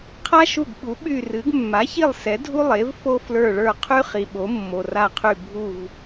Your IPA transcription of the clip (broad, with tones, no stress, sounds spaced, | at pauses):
qʰ a˥ ʃ u˦˨ ɡ ɓ u˨˥ ɓ y˦˨ r ɨ˨˥ ɡ mː a˨˥ ç i˦˨ lˠ s ɛ˨˥ dʱ u˥ lˠ e˨˥ v f o˥ f l ə˞˦˨ ɭ ə˞˦˨ qʰ y˥ χ i˨ ɓ o˨˥ mː o˨ r a˦˨ qʰ y˦˨ bʱ u˦˨ v